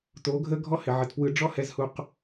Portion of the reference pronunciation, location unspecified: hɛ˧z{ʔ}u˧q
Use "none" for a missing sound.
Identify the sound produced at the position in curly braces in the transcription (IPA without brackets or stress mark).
h